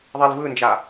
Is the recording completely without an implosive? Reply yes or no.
yes